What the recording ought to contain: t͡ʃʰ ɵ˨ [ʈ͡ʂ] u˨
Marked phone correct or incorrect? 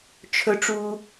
correct